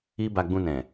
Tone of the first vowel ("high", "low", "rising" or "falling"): high